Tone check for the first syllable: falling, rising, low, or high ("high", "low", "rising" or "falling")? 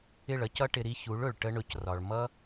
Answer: falling